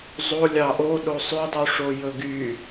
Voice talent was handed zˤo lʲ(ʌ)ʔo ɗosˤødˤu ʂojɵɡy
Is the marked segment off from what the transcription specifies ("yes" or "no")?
yes